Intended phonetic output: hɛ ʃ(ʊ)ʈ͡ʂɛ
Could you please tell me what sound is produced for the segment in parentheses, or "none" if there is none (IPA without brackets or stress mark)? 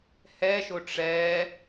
ʊ